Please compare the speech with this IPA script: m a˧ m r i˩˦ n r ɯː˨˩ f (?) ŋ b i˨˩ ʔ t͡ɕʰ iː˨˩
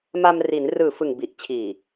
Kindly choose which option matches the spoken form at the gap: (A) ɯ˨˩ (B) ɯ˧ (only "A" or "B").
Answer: A